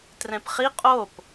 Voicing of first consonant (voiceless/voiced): voiceless